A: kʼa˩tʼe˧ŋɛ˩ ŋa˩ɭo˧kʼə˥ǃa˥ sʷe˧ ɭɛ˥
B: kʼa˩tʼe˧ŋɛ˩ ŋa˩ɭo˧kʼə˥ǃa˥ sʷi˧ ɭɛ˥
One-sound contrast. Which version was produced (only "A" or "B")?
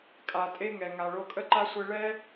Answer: A